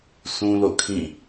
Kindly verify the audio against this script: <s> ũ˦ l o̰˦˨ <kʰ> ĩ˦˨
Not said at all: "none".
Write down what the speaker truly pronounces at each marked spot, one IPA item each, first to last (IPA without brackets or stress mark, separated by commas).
s, kʰ